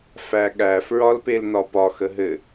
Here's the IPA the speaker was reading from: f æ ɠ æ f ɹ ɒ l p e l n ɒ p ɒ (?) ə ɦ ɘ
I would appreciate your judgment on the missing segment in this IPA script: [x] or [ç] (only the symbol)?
x